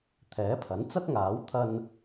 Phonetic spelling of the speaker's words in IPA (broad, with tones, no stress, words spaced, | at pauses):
t̪ʰɛː˨˥pʰɐ˨˥n t͡sɐ˥t̚ŋaː˨˥w t̪ʰɐ˧n